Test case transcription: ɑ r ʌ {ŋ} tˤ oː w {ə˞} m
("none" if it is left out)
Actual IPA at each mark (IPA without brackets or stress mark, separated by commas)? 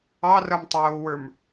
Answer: m, ə˞